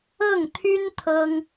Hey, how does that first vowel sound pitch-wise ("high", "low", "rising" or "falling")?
falling